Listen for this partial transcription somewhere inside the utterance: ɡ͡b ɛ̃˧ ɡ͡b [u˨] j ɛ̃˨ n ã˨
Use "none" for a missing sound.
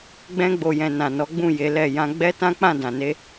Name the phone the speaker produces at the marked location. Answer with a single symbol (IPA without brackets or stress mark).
o˨